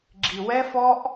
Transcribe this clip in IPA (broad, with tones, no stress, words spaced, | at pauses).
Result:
ɡ͡ǁi˩wɛ˧fɔ˧ʔ